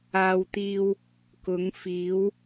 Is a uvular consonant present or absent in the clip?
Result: absent